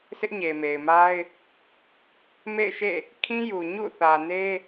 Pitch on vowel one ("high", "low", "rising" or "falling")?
high